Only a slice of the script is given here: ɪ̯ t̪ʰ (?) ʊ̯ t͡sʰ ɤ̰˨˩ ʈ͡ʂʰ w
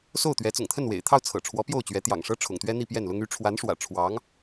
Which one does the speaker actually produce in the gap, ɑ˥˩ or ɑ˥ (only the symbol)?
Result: ɑ˥˩